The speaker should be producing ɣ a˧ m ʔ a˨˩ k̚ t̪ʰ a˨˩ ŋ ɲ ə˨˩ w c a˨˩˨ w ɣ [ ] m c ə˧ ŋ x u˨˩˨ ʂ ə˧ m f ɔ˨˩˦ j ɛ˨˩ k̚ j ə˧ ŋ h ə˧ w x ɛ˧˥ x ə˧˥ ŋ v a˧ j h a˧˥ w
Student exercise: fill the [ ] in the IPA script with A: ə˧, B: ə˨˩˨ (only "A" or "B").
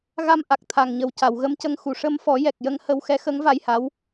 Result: A